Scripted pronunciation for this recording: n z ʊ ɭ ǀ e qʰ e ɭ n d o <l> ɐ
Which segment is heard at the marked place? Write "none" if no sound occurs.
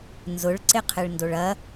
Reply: ɭ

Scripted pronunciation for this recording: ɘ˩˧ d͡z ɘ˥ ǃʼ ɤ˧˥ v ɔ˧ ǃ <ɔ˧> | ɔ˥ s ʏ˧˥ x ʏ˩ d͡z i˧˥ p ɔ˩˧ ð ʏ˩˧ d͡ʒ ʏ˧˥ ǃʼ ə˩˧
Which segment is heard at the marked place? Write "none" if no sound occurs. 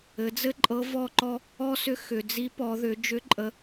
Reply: ɔ˧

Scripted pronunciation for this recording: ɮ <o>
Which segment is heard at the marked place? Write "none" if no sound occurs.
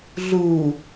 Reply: u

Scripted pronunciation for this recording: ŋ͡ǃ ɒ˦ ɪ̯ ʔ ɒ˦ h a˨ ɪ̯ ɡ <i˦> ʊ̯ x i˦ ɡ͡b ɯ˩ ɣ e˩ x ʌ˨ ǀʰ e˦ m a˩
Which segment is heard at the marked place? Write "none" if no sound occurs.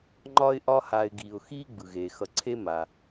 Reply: i˩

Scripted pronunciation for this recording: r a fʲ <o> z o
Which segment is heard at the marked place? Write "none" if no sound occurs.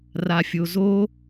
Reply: o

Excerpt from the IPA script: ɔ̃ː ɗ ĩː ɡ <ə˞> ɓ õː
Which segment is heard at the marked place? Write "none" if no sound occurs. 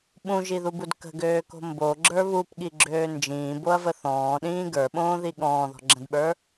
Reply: ə˞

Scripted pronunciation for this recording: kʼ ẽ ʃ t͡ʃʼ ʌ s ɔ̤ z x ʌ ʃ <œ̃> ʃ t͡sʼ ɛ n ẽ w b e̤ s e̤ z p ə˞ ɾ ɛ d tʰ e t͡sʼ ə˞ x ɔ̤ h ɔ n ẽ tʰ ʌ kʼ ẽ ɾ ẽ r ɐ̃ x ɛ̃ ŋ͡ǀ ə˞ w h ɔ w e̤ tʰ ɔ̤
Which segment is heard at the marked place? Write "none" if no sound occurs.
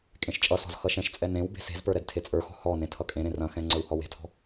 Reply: ɛ̃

